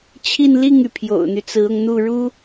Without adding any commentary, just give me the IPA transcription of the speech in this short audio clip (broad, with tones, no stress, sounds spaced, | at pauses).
t͡ɕʰ i˥˧ n l i˥˩ ŋ y˩ pʰ j o̰˨˩ ʊ̯ n̪ y˦ t͡s ɹ̩˧˥ ʊ˧ ŋ n̪ u˥˩ ɻ u˥